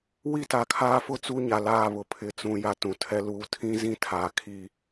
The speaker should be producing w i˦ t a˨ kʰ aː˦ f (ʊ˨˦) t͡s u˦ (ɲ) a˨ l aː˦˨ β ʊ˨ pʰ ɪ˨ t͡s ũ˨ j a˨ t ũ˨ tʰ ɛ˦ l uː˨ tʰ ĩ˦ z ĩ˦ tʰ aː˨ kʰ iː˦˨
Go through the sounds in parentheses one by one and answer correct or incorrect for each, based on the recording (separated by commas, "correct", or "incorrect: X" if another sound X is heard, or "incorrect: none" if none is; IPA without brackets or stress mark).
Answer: incorrect: ʊ˦, correct